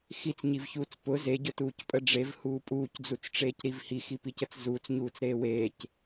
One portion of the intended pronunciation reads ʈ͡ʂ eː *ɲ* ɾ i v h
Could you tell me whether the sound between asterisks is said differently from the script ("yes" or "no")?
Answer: yes